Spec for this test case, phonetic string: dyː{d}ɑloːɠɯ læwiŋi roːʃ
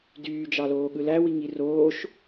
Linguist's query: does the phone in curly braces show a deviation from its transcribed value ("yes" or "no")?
yes